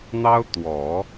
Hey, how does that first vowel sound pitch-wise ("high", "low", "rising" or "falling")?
high